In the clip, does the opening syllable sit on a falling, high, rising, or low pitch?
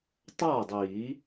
falling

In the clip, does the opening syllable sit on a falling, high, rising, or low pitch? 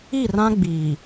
falling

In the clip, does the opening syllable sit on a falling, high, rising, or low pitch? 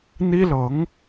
high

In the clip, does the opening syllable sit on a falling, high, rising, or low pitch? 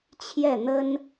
falling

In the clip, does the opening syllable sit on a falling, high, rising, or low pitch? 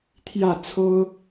falling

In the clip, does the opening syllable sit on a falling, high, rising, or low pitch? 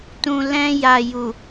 low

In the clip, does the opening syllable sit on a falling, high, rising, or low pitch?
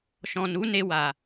low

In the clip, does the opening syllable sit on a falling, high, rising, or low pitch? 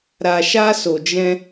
low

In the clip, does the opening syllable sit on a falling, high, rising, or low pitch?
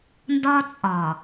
high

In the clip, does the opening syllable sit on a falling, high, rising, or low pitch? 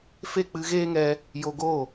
falling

